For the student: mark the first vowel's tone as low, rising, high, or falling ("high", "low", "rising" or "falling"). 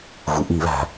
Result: low